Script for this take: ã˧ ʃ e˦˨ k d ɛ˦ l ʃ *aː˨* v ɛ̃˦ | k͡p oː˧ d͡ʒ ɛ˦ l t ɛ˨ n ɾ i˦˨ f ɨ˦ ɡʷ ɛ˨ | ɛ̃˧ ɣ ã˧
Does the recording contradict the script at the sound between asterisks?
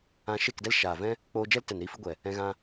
no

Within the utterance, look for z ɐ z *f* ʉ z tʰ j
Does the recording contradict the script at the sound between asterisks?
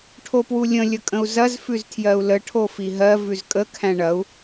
no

